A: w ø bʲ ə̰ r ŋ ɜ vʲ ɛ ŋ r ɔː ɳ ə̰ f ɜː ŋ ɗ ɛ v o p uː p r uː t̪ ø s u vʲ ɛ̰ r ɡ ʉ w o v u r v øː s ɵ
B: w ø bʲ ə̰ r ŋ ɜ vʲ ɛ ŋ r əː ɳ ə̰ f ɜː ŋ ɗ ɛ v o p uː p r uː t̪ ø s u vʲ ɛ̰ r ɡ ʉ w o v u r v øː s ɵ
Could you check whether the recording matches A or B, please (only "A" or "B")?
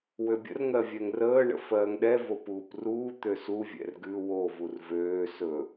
B